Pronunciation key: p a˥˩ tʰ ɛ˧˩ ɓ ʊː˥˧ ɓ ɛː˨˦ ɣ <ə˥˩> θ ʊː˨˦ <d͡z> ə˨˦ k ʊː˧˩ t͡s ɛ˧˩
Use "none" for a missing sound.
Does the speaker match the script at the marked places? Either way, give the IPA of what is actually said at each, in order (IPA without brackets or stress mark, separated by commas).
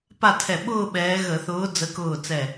ə˧˩˧, d͡z